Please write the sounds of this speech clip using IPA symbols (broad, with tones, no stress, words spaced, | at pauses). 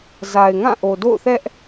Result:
za˨ɪ̯ŋã˦˨ ʔo˨do̰˦˨ʊ̯θɛ˦ʔ